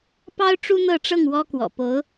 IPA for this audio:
p ɑ˥ ʊ̯ ʈ͡ʂ u˥ n̪ ɤ˥˧ ʈ͡ʂ ɤ˥˩ ŋ w ɔ˥ k w ɔ̰˨˩ p o˧˥ ʊ̯

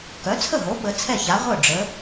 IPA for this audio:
k œ˩˥ t͡sʰ ə˥˩ ɦ o˩˥ ɓ ə˩˥ t͡sʰ ɛ˥˩ ç a˩˥ ʁʷ œ˥˩ ɖ͡ʐ ə˩˥

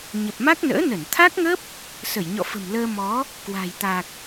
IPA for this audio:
ɲ ə˨˩ p̚ m a˦˥ k̚ n ə̰ː˧˥ n ə˧˩ n t̪ʰ a˦˥ k̚ ŋ ə˦˥ p̚ | s ə˧˩ j ɲ ɔ̰˧˨ f ə̤˨˩ m l əː˧ m ɔ˨˦ | k w a̤˨˩ j t̪ a˨˩ k̚

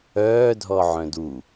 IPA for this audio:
œː dʱ ɔ ʕ œ̃ d u

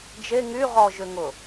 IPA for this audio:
d͡ʒ e ŋ y ʁ ɔ ʒ ʏ ŋ ʊ

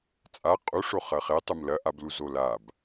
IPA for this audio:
t͡sʼ a qʼ u ʂ o χ ɐ χ e tˤ u m l ɐ ʔ a b l u z o l a b

